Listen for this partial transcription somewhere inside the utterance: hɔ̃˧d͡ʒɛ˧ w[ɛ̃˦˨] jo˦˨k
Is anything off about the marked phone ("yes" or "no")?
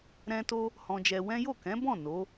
yes